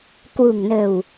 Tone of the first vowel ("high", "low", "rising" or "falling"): low